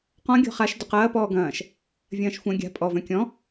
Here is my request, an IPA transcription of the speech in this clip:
qɔ̃ ɡʲɔ̤χaʃ dʊqɐː pɔːɡɐ̃ːʃ | vʲɐ̃ːʃxʷɐ̃ ɡʲa̤ pʼɔ vœ̃kʲɔ̃

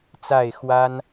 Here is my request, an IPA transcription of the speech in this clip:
t͡sa˥˨ɪ̯ xwa˦n

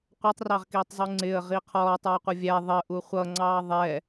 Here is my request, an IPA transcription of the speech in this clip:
qʷʌtˤrɑʁkiːtˤzˤu ŋ͡ǀɪə̯ʁi qʰɔːtˤə˞ɪ̯qʷʌ vʲæ ðˤəʔu χʷʌŋ͡ǀɑː ðˤɛ

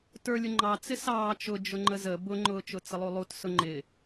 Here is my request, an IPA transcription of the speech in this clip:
tə˞lʲʊ ŋ͡ǃɑ t͡sɪsɑː t͡ʃʊ d͡ʒʊŋ͡ǃəzə bʊŋ͡ǃʊː t͡ʃʊt͡səlˠulˠut sʊŋ͡ǃɪ

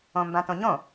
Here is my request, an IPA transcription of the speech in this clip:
õmbãtõɲõ

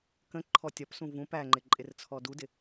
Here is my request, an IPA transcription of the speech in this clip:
kə̃ǃʰɔ tʲɒpsũ vũ pæŋ͡ǃɪ ǃʼɪrt͡sʰɔdudɪ

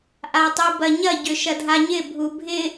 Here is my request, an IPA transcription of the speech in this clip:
ʔatˤubɐɲɐ ɟʏʃɐdʱaɲɪ bʱubʱɪ

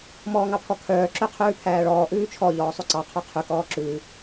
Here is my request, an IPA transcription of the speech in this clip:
mɔːŋɑpʰɔkʰœː ǁøqʰʉːpʰæːɭɔː ʔʉːt͡ʃʰɔ ʎɔːsˤʉǀɑ qʰœqʰʉ kɔːǁʉː

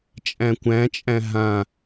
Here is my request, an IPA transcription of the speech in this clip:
t͡ʃʼæ̃kʷæ̃t͡ʃʼæ̃ ɦã

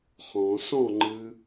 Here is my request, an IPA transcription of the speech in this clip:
χɔ̃ sɔ̃ŋ͡ǃɨ

